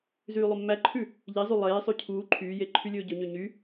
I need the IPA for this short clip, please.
z yː lˠ ɵ mː æ ǃʰ ʉ | ʎ i zˤ y lˠ eː sˤ ʉ cʰ uː ǃʰ yː j e ǃʰ y lʲ ɵː ɟ ɵ ɲ ø ɲ y

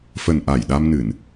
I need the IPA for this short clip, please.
f ə˨˩ n ʔ a˧˩ j ɗ a˧ m n ɨ˧˩˨ n

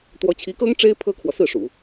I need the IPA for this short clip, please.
t̪ w ɔ˧˥ t͡ɕʰ i˧˥ k ɤ˥ ŋ ʈ͡ʂ e˥ ɪ̯ pʰ ɤ˥ kʰ w ɔ˨ s ɹ̩˥˩ ʂ ṵ˨˩˦

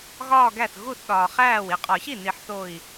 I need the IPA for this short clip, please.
ɣ ɒː˥˧ ɡ æ˥˩ θ ɣ u˥˩ θ ɗ ɒː˩ χ æː˥˩ w i˧˩ qʼ ɒ˨˩˦ ç i˥˩ n i˨˩˦ ħ θ o˧˩ i̯

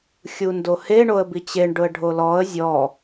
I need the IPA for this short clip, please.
xʲ u n d o h e ɳ o ə̯ b i t͡ɕ e ɳ ɖ ʊ ə̯ ɖʱ o l ɔ ə̯ zʲ ɔ

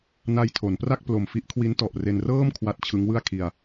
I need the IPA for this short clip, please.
n a˧ j tʰ o˩˦ n p r a˥˩ k̚ p l o˨˩ m f i˦˥ ʔ kʰ w i˦˥ n t ɔ˨˩ ʔ r e˧ n r ɤː˥˩ m kʰ w a˦˥ t̚ t͡ɕʰ ɯ˦˥ ŋ w ɯ˥˩ a̯ kʰ i˧ a̯

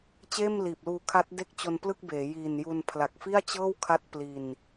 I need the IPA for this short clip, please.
t͡ɕ eː˥˩ m l iː˨˩ p̚ l uː˧ kʰ a˦˥ t̚ d e˥˩ k̚ t͡ɕ o˧ n p l ɯ˥˩ k̚ b eː˩˦ j iː˨˩ n j u˧ n pʰ l a˨˩ k̚ f i˥˩ a̯ t͡ɕ ɤː˥˩ w kʰ a˦˥ t̚ p l i˧ n

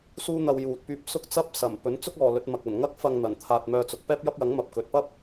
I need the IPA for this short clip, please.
s uː˥ n̪ ɐ˧ w j uː˨ t̚ p yː˧ p̚ s ʊ˥ k̚ t͡s ɐ˥ p̚ s ɐ˨˩ m p ɵ˨˥ n t͡s ʊ˥ k̚ ɔː˨ l ɵ˨˥ t̚ m ɐ˨ k̚ ɐ˨˩ n ŋ ɐ˧ k̚ f ɐ˨ ŋ n̪ ɐ˨˩ n t̪ʰ aː˨ t̚ m œː˧ t͡s ʊ˨ k̚ p ɛː˥ p̚ j ɐ˥ p̚ j ɐ˨˥ ŋ m ɐ˨ p̚ k ɵ˨˥ t̚ p ɐ˥ p̚

